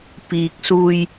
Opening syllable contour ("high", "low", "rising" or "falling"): low